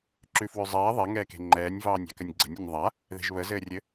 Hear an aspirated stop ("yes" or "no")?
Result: no